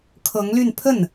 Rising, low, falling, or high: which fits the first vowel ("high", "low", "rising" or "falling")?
rising